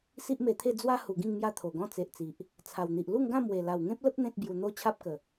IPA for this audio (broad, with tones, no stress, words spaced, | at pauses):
si˦ʔme˧t̪ʰe˥˧ d͡zwa˦ hu˨˩ɡĩ˥˧ŋ mja˦t̪ʰo˨˩ɡɔ̃˦ t͡se˨ʔt͡si˨ʔ | t͡sʰa˨˩wn̪i˨ʔ lu˥˧ŋɡã˥˧mwe˨˩ la˨˩wŋẽ˦p̚lə˦p̚ n̪ẽ˦t̚ bju˧n̪o˦ t͡ɕʰa˦p̚kə˨˩